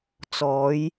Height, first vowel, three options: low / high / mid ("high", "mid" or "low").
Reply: mid